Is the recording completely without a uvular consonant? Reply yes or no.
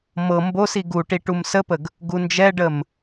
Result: yes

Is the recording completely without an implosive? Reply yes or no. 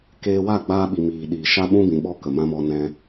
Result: no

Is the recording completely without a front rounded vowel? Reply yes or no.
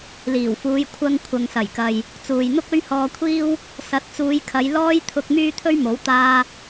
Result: no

